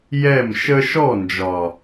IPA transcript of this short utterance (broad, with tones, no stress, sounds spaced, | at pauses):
j ɛ˦˨ m ʃ ə˦ ʃ ɔ˦˨ n d͡ʒ ɒ˨